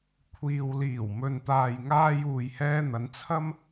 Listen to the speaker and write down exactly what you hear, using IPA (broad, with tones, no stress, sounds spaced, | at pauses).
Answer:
kʷʰ iː˨ w l iː˨˩ w m ɵ˨ n t̪ aː˨ j ŋ aː˧ j uː˨ j h ɛː˧ n̪ ɐ˨˧ n t͡sʰ ɐ˧ m